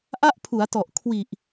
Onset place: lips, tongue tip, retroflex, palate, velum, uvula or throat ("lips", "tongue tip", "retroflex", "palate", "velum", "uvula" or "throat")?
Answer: throat